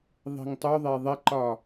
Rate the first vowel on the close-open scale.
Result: close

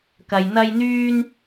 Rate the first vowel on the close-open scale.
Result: open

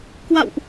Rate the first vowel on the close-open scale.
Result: open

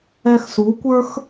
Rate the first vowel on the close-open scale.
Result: mid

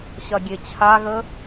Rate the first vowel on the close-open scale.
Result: open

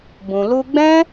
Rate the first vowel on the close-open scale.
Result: close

